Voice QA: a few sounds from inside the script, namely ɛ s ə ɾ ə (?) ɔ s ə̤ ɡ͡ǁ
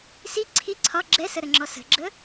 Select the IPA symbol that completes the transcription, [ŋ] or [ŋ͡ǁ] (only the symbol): ŋ͡ǁ